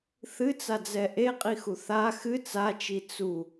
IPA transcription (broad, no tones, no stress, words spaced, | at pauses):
θɨt͡sad͡zɛ ʔeqʼixu θa xɨ t͡sat͡ʃi t͡su